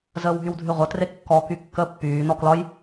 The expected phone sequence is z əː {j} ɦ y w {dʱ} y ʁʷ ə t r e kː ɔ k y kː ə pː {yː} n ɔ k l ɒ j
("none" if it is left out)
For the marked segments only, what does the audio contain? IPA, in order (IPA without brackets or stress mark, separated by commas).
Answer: w, dʱ, yː